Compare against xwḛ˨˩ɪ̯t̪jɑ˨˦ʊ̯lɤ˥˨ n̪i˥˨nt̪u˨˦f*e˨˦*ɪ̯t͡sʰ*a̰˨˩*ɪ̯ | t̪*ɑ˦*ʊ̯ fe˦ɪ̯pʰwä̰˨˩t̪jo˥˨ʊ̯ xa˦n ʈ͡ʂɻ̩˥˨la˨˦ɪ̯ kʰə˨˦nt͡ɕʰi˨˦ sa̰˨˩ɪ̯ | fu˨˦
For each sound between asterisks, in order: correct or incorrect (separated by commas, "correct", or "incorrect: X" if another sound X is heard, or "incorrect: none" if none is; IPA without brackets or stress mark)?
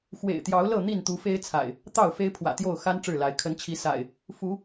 incorrect: e˦, correct, incorrect: ɑ˥˨